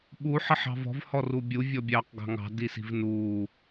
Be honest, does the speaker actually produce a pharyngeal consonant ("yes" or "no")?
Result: yes